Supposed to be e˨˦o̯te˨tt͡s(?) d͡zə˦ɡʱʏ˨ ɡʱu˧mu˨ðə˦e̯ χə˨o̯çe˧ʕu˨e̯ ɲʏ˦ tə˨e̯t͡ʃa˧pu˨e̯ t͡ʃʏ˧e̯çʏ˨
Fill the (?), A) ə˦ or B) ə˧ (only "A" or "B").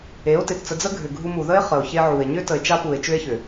B